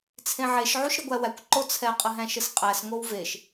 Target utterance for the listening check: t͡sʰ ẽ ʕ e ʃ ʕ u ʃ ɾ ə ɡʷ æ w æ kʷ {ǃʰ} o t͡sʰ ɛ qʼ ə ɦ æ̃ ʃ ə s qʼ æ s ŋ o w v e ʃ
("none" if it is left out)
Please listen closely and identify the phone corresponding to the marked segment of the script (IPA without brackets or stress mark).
ǃ